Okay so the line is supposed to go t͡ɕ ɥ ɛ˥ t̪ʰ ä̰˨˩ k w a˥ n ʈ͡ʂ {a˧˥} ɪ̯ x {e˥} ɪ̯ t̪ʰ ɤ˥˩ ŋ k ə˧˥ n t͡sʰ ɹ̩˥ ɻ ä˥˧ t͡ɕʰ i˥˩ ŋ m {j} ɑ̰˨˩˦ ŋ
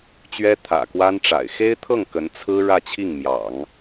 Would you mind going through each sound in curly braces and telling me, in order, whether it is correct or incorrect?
incorrect: a̰˨˩, correct, correct

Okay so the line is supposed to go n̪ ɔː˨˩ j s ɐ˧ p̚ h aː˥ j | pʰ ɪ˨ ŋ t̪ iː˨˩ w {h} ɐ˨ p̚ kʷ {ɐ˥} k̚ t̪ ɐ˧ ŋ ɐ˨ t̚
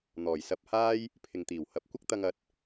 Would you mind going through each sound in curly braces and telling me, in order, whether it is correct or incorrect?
correct, correct

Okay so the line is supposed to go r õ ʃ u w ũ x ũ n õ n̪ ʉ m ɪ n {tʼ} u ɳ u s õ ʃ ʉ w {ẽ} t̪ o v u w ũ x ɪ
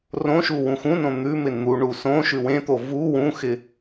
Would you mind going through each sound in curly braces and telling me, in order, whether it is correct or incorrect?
incorrect: n̪, correct

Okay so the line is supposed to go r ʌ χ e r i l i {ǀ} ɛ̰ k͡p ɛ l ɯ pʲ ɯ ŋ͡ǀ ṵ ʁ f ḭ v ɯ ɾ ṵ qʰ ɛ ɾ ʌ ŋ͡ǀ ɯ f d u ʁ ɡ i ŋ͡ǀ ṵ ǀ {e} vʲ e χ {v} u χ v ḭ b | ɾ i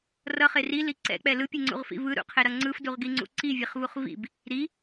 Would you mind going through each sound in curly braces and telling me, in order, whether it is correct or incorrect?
correct, incorrect: i, correct

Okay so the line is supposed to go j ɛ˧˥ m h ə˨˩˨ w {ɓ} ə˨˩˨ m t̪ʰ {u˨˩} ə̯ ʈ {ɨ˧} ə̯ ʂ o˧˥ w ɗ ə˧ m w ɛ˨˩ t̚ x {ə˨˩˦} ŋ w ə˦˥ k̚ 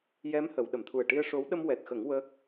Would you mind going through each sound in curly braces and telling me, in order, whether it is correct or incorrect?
incorrect: ɗ, correct, incorrect: i˧, correct

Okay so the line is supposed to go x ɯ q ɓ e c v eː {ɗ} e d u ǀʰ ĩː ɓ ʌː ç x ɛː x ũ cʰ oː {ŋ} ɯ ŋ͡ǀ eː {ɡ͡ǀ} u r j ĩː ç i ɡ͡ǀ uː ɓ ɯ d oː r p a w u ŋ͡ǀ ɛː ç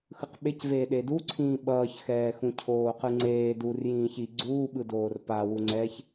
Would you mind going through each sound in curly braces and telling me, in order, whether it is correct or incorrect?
correct, incorrect: q, incorrect: d

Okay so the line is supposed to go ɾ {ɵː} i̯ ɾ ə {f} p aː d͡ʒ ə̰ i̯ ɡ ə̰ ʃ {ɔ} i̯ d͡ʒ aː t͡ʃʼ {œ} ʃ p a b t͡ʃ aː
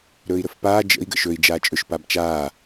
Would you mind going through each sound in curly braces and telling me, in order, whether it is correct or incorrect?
correct, correct, incorrect: ɵ, incorrect: ɵ

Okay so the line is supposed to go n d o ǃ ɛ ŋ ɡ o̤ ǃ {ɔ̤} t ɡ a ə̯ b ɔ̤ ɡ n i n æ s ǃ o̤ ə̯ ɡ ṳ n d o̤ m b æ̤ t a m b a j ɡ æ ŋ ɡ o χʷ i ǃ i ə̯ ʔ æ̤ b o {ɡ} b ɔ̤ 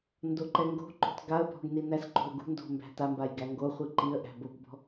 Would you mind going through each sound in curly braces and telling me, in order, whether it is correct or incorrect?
incorrect: o̤, correct

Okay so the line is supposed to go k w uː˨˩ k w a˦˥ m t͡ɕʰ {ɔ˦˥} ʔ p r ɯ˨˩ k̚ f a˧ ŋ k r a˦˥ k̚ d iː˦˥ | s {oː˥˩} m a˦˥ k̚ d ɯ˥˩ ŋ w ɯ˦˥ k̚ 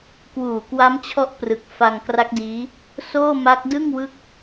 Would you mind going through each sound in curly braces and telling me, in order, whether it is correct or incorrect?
correct, correct

